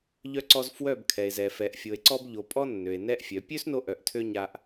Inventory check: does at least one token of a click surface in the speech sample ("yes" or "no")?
yes